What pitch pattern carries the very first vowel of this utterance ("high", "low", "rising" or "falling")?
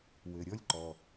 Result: low